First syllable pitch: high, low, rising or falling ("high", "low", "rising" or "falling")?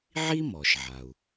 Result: high